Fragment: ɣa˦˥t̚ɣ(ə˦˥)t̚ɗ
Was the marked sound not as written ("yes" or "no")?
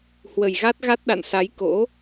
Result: yes